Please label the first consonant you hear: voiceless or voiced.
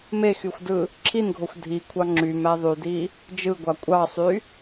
voiced